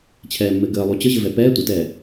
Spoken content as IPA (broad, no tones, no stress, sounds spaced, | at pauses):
t͡ɕʰ ɛː mː ɘ ɡ əː lˠ u t͡ɕ ə ʑ ɘ v ɛ p ɛː tʷ ɘ t ɛː